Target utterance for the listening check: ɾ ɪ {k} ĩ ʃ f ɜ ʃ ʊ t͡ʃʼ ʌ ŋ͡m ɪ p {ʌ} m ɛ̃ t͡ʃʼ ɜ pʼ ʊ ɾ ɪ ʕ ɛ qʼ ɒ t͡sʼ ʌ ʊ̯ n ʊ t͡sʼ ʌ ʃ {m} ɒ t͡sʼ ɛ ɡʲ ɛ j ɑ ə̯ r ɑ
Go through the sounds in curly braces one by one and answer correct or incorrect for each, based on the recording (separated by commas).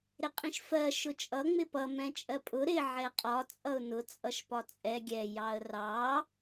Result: incorrect, correct, incorrect